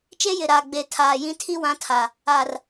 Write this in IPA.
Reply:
t͡ʃ e˦ j ɪ˨ ɾ aː˨ ɡ͡b e˨ tʰ aː˨ j ĩ˦ tʰ i˦ w ã˨˦ tʰ a˨ | aː˨ r

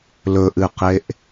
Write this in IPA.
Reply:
l ɵ ʔ ɨ q e ʔ

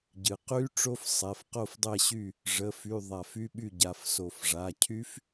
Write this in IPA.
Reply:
ɟ ɨ˩ q y˦˥ ʈ͡ʂ o˦˥ f sˤ ɛ˩˧˩ f q o˥˨ f dˤ ɛ˥˨ ɕ y˥˨ | ʐ ə˩˧˩ f y˩˧˩ ðˤ a˧˩ f y˦˥ ɓ y˥˨ ɟ a˩˧˩ f s o˧˩ f ʐ a˩˧˩ cʰ y˦˥ f

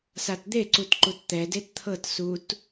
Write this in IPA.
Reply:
s a t d̪ e ǀ u t ǃ u t t̪ ɛ d e t t̪ʰ ɤ t s u t

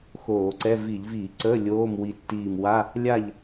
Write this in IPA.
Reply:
x oː˧˩˧ ǀ ɛ˧˥˧ v i˧˩˧ ʎ v iː˧˩˧ ǀ əː˧˥˧ lʲ oː˧˥˧ m w i˧˩ tː iː˧˩ m w a˧˥˧ | lʲ a˥˨ ʎ

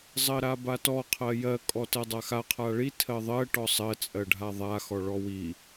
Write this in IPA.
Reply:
zˤ ɜ ɾ a b a t ɔ qʰ ɜ j ɜ kʼ ɔ t ɜ dˤ a x a qʰ a ɭ i tʰ ɜ ðˤ ɜ ʈ ɔ sˤ ɜ t͡sʼ ɜ ɖʱ a ðˤ a x ɔ ɭ ɔ w i

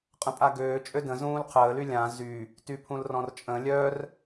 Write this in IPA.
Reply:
qʼ ə̃ pʼ a ɡ øː t͡ʃʼ ø d ə̃ z ũː l qʰ əː l y lʲ ã z y | t y pʰ ũ l r ɔ̃ r t͡ʃʼ ə̃ lʲ œ r

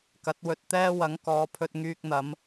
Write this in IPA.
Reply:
k ɐ˨˥ t̚ w ɵ˧ t̚ t̪ ɛː˥ w ɐ˨˥ ŋ k ɔː˨˧ pʰ ɵ˧ t̚ ŋ yː˧ k̚ n̪ ɐ˨˧ m

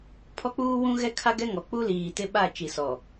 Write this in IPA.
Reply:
pʰ ɔ˦ k͡p uː˦ w ũ˦ ɣ ɛ˦ kʰ a˦ ɡ ɛ˦ ŋ ɔ˨ k͡p u˦ l iː˨ t ɪ˦ ɓ a˦˨ t͡ʃ i˨ s ɔ˨

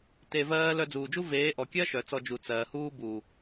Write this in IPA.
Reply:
t e˧ v ɜː˦ l œ˧ d͡z uː˨ d͡ʒ u˦ v eː˨˦ ʔ ɔ˨ kʲ ɜ˦ ʃ œ˨ t͡s ɔ˧ d͡ʒ u˨ t͡s ɜː˨ h uː˦ b uː˨

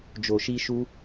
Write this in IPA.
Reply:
d͡ʒ o˨ ʃ i˧ ʃ u˧

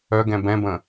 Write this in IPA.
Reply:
œ ɡ ɛ̃ b ɛ̃ b ə̃

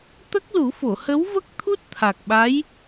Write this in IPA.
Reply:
t̪ ə˦˥ k̚ l u˨˩˦ f o˨˩˨ h ə˧˥ w v ə˦˥ k̚ t̪ʰ u˦˥ t̚ t̪ʰ a˨˩ k̚ ɓ a˧˥ j

